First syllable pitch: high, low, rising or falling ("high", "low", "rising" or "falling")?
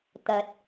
low